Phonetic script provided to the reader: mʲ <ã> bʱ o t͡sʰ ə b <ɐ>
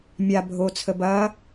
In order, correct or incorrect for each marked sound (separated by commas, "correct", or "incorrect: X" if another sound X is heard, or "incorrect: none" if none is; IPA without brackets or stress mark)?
incorrect: a, correct